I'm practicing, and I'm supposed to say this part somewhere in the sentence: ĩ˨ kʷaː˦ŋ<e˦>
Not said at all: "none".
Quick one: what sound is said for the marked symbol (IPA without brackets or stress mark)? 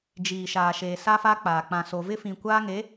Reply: e˨˦